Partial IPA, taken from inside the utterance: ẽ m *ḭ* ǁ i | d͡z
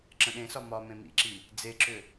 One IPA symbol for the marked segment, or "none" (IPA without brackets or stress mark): ḭ